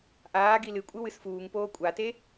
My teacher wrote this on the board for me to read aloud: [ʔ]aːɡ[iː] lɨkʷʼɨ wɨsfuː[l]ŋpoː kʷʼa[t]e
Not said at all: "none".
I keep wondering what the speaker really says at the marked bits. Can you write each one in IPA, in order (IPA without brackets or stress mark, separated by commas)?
ʔ, i, none, t